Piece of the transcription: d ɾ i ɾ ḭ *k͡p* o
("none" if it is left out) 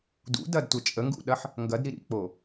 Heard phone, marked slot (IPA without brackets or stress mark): k͡p